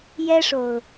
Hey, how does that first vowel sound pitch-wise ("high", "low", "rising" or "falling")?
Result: high